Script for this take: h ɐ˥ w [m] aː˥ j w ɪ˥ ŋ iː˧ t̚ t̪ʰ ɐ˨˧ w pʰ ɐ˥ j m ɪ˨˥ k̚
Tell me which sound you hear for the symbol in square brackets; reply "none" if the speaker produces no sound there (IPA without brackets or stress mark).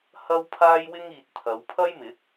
pʰ